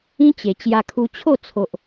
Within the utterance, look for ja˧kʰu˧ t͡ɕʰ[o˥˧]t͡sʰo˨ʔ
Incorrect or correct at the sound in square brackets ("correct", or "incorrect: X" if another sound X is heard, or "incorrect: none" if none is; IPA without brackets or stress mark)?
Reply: correct